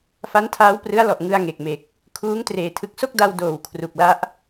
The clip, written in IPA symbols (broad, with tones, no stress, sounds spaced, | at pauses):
f a˦˥ n tʰ aː˦˥ w p r ɯ˦˥ a̯ l ɔ˨˩ ʔ ŋ ɯ˧ a̯ ŋ e˨˩ k̚ m e˨˩ k̚ | kʰ uː˦˥ ŋ t r eː˨˩ tʰ ɯ˨˩ k̚ s o˥˩ k̚ d a˧ w d oː˨˩ w kʰ r u˨˩ k̚ l a˦˥ ʔ